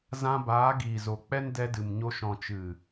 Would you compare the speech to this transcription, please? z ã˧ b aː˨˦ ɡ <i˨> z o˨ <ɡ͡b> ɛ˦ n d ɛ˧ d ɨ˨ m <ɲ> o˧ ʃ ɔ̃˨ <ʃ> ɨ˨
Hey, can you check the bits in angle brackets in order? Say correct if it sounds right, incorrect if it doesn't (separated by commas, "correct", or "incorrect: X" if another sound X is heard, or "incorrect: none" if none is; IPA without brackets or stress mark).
incorrect: iː˨, incorrect: k͡p, correct, incorrect: t͡ʃ